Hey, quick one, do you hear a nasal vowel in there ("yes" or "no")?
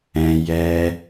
yes